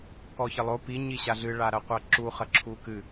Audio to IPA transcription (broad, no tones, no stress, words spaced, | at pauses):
kɔçɘlˠo pi ɲiɕaɮɨɭa ɾɐqʷaǁu χɐǁʰukɨ